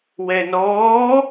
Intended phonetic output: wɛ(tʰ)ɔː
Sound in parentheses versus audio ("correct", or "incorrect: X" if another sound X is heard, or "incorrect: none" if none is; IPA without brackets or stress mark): incorrect: n